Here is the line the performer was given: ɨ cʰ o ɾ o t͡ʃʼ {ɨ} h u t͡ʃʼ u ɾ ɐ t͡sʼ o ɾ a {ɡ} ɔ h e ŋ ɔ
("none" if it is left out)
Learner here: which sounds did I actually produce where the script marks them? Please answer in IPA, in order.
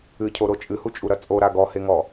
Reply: ɨ, ɡ

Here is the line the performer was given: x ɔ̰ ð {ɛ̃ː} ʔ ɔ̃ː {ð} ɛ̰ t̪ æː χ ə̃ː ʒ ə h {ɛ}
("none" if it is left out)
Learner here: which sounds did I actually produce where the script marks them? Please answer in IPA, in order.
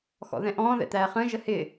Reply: ɛ̃, ð, ɪ

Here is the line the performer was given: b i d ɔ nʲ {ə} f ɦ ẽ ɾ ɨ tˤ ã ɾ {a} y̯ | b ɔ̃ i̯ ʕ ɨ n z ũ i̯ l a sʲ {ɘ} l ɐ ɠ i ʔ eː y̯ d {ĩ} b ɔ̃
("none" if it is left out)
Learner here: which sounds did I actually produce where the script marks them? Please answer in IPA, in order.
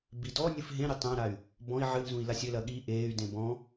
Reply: ɨ, a, ɘ, ẽ

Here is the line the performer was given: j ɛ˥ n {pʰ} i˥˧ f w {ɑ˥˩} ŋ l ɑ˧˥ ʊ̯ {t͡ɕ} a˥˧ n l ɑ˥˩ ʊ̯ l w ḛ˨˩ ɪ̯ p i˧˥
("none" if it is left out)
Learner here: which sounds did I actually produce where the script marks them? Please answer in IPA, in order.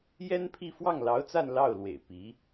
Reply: pʰ, ɑ˥˩, t͡s

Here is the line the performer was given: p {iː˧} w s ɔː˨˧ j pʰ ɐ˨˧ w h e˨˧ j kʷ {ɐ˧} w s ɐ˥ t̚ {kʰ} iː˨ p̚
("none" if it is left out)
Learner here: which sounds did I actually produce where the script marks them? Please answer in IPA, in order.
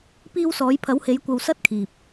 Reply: iː˧, ɐ˧, kʰ

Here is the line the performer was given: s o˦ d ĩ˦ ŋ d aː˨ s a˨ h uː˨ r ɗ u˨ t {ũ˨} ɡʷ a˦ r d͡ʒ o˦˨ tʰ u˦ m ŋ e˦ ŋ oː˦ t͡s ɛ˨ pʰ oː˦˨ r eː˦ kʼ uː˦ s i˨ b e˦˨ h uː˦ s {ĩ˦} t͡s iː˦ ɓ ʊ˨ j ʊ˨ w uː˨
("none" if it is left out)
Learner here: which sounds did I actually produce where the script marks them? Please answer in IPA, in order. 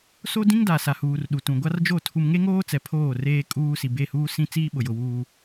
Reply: ũ˨, ĩ˦

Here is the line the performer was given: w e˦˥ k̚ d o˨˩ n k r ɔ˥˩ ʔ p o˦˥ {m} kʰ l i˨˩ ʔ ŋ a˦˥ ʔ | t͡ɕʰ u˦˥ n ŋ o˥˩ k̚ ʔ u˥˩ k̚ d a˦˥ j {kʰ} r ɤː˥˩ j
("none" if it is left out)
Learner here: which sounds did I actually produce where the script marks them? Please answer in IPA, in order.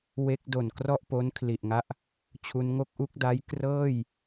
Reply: n, k

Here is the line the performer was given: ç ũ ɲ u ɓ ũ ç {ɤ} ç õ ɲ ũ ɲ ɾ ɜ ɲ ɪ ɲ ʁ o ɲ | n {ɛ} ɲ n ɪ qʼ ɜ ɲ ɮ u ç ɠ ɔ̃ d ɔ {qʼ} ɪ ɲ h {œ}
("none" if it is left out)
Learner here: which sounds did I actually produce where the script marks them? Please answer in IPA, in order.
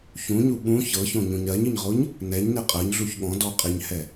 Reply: ɤ, ɛ, qʼ, ɛ

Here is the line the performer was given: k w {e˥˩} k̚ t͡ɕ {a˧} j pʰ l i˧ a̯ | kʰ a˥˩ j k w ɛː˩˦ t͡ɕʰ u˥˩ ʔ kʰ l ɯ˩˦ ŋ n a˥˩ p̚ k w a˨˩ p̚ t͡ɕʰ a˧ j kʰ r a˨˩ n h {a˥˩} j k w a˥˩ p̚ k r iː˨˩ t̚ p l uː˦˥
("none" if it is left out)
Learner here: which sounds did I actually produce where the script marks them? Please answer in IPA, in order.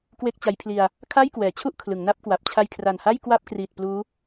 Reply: e˥˩, a˦˥, a˥˩

